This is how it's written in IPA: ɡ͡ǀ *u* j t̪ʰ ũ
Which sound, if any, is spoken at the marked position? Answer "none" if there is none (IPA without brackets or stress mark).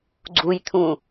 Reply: u